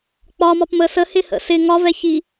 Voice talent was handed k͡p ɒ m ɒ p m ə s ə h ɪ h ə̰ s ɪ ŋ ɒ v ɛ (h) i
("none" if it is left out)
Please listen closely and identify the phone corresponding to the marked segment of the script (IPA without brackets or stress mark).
ç